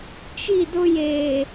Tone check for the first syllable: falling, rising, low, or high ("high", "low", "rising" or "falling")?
falling